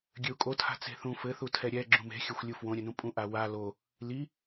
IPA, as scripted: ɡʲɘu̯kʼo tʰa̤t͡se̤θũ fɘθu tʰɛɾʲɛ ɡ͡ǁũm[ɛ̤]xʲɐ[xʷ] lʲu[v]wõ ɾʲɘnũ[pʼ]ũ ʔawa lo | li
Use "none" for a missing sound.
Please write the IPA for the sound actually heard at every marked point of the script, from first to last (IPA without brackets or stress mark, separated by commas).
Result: e̤, xʷ, f, pʼ